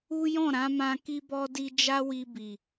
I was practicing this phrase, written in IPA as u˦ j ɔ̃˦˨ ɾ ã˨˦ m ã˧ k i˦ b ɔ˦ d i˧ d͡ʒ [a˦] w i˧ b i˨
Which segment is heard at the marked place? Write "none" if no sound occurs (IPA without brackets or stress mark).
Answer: a˦